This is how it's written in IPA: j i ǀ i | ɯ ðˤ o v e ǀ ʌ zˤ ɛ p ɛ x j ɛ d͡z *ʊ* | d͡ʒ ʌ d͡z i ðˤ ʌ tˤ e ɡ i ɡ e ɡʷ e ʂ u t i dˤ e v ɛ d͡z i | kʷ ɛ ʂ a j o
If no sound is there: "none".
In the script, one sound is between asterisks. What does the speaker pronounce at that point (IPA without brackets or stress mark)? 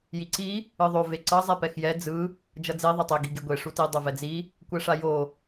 ɯ